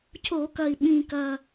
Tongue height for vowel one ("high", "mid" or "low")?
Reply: mid